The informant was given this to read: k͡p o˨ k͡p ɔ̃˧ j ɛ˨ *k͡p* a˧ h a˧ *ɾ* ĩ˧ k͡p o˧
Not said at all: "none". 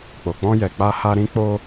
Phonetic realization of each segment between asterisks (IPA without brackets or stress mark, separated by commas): k͡p, ɾ